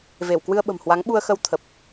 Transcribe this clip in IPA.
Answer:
ve˧˩w kwɨ˧ə̯ɓə̤˨˩mhwa˨˦ŋ ɓu˧ə̯xə˧w t̪ʰə˨˩p̚

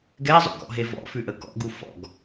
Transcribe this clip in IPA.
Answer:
ɡɛzˤṵkɔ̰ɦe vɔ̰fʉʔə kɔ̰ɡu fɔ̰ɡ

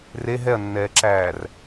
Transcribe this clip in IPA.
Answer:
re ɦɛɐ̯nːɛːǁæːr

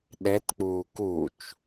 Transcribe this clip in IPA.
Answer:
ɗɛtk͡puː kut͡ʃ

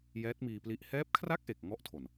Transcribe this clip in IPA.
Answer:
jɛː˦˥t̚miː˧pli˦˥ʔ hɛː˦˥p̚kʰra˥˩k̚ʔe˨˩k̚ ŋɔ˥˩ʔtʰo˨˩n

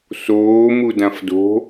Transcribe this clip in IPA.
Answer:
soːmu dãfdo̤

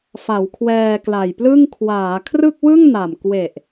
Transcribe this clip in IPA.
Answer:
fa˩˦wkʰwɛː˧kla˨˩jplɯ˥˩ŋ kʰwaː˩˦kʰrɯ˥˩k̚ wɯ˥˩ŋna˨˩m kwe˨˩ʔ

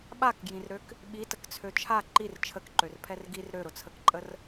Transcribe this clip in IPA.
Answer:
ɓakɡjĩrɾøk | ɓitəkt͡sʰø t͡ʃʰa ǃir t͡ʃʰəkǃørpʰɛr ɡir ɾøɾʊt͡sʰəkǃʼər

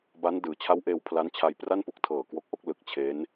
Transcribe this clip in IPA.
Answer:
ba˦˥n dɯː˩˦t͡ɕʰa˦˥wʔeː˧w pʰla˦˥nt͡ɕʰa˧jpra˥˩n pu˦˥k̚ tʰɤː˨˩ kwo˦˥k̚ʔo˦˥k̚ lɯ˨˩k̚t͡ɕʰe˦˥n

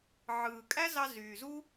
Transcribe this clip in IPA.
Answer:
ʕɯː˨kʼæ˦zɑ˧ zyː˨zu˦

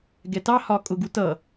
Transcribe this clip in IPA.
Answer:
ɡɛtɑ hɒkʼʊ ɡutʌ

